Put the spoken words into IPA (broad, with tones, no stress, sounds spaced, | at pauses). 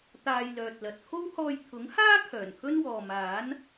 t̪ aː˨ j l œː˨ t̚ l ɐ˨ t̚ kʰ o˥ w h ɔː˧ j t̪ʰ ʊ˨˥ ŋ h aː˥ kʰ œː˨˩ n kʰ ɵ˥ n w ɔː˨ m aː˨˥ n